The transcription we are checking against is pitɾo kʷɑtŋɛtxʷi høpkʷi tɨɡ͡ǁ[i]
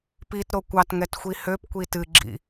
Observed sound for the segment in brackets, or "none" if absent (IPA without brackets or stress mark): ḭ